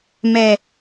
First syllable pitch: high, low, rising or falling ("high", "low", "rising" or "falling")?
low